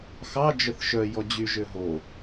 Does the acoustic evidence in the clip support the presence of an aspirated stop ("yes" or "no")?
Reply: no